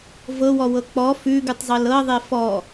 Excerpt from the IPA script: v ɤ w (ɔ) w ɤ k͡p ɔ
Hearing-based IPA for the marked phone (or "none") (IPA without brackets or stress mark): ɔ